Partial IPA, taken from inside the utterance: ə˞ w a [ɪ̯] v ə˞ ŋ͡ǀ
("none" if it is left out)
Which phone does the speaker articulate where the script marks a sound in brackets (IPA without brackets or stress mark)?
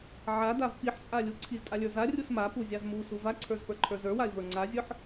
ɪ̯